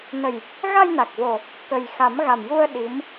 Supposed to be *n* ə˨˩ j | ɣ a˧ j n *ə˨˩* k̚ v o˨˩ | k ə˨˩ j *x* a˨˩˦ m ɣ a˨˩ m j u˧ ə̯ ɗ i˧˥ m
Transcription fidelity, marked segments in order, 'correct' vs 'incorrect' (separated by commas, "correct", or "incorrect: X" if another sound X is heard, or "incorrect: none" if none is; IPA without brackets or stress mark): correct, incorrect: a˨˩, correct